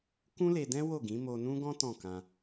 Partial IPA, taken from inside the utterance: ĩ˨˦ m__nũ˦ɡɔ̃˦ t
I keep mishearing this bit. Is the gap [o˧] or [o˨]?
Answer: o˧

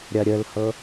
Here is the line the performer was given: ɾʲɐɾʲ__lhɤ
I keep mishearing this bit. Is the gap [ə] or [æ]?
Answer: ə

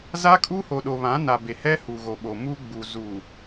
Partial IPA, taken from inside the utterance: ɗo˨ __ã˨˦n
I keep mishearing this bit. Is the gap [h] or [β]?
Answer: β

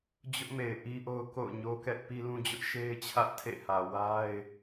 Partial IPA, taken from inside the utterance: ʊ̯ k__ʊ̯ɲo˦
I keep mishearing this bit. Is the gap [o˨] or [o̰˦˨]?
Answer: o̰˦˨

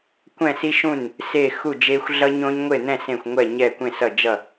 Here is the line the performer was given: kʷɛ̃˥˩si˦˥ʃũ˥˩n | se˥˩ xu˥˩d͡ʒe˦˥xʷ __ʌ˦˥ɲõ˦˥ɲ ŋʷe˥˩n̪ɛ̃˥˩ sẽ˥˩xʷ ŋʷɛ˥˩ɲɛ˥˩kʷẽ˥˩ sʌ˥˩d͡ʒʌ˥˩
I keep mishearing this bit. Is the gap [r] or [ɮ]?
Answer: ɮ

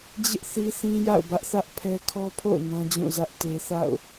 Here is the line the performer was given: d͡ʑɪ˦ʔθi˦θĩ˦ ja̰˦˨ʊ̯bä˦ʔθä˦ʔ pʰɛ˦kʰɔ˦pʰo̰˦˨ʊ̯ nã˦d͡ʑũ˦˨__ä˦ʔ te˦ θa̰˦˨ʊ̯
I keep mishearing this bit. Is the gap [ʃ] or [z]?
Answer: z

